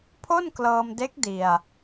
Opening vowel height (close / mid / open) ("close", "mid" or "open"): mid